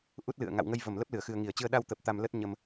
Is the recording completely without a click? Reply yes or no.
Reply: yes